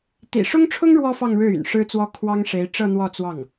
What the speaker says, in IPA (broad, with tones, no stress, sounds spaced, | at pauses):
t̪ ḭ˨˩ ʂ ʊ˥ ŋ ʈ͡ʂʰ ʊ˥ ŋ ɻ w ɔ˥ f ɑ˥˧ ŋ ɻ ɻ̩˥˩ y̰˨˩ n ʂ ɻ̩˥ t͡s w ɔ˥ kʰ w ɑ˥ ŋ ʂ e˧˥ ɪ̯ ʈ͡ʂ ɤ˥˧ n̪ w ɔ˥˧ t͡s w ɑ˥˩ ŋ